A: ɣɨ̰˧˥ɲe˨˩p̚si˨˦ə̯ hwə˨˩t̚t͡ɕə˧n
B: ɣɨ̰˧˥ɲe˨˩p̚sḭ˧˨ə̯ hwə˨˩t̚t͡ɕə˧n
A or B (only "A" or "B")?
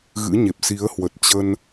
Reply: A